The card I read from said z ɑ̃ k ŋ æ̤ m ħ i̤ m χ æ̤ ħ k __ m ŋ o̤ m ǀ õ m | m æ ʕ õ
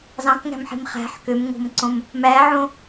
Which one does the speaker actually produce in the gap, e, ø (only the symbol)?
ø